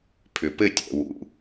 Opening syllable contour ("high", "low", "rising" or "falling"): low